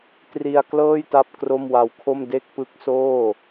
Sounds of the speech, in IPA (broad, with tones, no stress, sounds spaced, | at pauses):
t r i˧ a̯ k l ɤː˥˩ j t a˥˩ p̚ k r o˥˩ m w a˧ w kʰ o˥˩ m d e˥˩ k̚ p ɯ˦˥ k̚ s oː˥˩